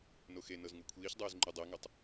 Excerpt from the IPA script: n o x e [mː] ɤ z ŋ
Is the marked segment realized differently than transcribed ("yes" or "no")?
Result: yes